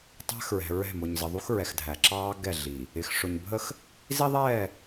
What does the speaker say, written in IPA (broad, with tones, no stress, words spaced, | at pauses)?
tˤæ̤˦xɹɛ̤˨ ɹɛ̤˦˨ mʊ˨ɲzə˨ðˤu˦x ɹɛ˨xdʱæ˨ ǁɑː˦ ɡɛ˦˨ɮi˨ | ɪ˨x ʂʊ˨ɲbʱə˦x | zi˦ðˤɛː˦˨